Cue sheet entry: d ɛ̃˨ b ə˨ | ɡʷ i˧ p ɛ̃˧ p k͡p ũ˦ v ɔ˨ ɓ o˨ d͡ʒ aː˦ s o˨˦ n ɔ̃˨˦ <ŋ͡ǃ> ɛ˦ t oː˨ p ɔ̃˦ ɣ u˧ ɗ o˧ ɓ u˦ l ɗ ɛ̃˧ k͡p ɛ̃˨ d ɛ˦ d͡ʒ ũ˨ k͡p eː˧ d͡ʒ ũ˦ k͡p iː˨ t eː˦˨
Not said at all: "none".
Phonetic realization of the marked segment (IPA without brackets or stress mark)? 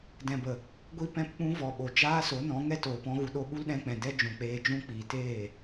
ŋ